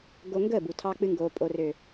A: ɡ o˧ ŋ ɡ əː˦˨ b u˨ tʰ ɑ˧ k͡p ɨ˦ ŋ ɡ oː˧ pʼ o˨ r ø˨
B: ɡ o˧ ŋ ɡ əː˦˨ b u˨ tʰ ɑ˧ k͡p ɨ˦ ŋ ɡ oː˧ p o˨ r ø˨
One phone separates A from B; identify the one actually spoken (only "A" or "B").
A